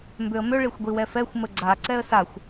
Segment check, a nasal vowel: absent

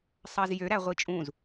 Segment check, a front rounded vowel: present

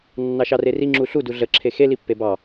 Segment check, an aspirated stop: present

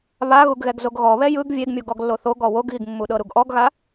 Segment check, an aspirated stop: absent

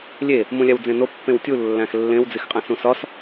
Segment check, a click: absent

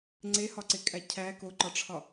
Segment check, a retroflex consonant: present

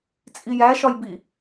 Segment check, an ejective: present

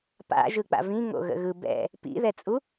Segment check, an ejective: present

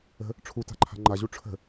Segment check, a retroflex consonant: present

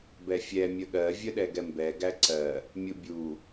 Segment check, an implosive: present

